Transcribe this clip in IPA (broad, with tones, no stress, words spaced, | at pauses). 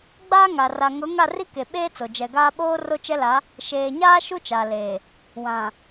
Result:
ɡ͡baː˦ŋa˨ ra˨ŋʊ˨˦ ŋa˦˨ri˦ ke˨ɓeː˦ t͡so˨ d͡ʒɛ˨ɡaː˦ ɓoː˦ ro˦t͡ʃɛ˦la˨˦ | ʃeː˨ɲaː˦ ʃu˦t͡ʃa˨leː˨ | wã˨